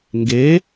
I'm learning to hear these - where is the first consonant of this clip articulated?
velum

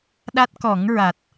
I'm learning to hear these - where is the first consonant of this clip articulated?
tongue tip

